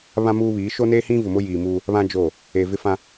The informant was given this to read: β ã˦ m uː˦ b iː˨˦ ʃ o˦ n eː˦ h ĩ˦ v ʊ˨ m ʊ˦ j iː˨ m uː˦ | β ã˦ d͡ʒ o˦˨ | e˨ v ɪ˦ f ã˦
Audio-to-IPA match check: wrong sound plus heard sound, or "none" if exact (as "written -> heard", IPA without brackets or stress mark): b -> β